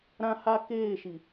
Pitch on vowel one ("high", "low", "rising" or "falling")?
high